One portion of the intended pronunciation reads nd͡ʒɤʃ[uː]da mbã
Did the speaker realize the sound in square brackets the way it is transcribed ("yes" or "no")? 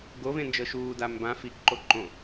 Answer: yes